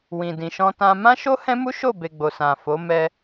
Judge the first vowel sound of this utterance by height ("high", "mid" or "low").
high